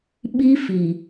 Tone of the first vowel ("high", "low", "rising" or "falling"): high